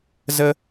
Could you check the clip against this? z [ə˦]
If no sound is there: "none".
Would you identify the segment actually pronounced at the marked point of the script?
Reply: ə˦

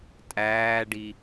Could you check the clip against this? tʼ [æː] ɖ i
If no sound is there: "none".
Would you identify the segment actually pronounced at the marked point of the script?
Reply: æː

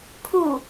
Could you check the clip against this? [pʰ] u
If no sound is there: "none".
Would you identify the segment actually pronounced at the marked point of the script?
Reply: pʰ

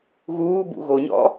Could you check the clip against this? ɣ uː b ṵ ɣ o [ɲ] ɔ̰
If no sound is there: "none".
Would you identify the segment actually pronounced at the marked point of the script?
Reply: ɲ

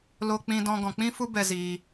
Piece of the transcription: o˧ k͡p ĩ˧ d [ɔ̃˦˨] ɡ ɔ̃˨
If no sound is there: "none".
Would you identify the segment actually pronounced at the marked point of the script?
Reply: ɔ̃˧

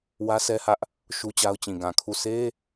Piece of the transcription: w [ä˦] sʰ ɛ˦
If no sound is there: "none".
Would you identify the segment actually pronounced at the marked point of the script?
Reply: ä˦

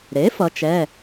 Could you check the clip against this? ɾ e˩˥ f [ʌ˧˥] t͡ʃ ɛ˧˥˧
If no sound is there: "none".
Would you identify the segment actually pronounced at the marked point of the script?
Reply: ʌ˧˥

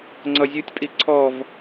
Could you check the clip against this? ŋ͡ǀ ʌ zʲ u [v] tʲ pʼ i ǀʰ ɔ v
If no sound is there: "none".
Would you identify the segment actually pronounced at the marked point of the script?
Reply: none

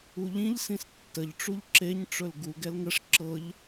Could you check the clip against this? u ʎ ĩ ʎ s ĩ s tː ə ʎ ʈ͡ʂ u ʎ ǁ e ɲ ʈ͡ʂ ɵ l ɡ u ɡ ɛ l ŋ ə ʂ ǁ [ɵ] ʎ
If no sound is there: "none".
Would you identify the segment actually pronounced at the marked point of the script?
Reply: ɤ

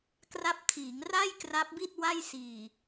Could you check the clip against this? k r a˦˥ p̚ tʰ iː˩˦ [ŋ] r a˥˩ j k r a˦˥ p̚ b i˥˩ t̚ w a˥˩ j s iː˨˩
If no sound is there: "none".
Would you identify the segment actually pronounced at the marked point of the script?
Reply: ŋ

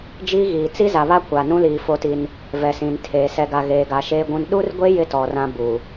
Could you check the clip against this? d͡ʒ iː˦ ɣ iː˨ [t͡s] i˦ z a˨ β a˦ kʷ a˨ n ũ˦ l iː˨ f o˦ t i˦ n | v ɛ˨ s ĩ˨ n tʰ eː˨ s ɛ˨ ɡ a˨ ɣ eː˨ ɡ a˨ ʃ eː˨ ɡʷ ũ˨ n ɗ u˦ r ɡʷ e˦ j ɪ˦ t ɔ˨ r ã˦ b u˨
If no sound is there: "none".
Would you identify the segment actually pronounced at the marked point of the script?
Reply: t͡s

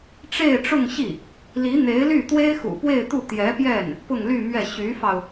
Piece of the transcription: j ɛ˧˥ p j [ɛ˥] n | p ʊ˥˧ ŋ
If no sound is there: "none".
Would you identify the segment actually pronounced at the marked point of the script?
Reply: ɛ˥˩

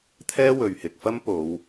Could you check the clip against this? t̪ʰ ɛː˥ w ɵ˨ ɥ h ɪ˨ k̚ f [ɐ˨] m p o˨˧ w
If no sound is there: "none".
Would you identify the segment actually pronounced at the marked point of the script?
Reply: ɐ˥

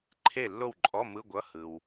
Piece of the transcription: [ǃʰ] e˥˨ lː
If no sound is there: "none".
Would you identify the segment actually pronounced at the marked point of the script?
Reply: ǃʰ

